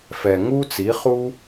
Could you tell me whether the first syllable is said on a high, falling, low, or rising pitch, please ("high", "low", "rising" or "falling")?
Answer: low